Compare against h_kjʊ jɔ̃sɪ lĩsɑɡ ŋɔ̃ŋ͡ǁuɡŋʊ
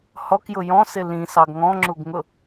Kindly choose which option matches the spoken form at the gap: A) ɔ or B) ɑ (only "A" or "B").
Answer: A